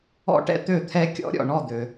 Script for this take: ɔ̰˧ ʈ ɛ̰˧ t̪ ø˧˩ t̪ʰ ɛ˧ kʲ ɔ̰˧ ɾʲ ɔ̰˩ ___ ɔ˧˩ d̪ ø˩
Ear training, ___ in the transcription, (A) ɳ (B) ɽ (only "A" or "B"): A